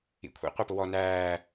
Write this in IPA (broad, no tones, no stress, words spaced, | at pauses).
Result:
ḭkʷʰḭ qʷɑpʊwɔ næː